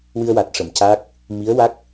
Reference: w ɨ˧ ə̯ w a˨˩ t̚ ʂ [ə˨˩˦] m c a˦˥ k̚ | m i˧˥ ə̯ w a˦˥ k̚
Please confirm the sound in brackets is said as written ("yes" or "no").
no